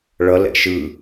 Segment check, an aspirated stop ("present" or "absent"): absent